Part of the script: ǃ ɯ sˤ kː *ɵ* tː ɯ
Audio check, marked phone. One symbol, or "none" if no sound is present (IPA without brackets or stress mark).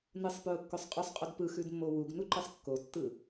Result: o